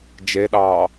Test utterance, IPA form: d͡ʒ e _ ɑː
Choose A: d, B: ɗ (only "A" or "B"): B